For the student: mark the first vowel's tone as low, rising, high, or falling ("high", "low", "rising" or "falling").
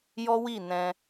high